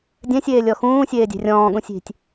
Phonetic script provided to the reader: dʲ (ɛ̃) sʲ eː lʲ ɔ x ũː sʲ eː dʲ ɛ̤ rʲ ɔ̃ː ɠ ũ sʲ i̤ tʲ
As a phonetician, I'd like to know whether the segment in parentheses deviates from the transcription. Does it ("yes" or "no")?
no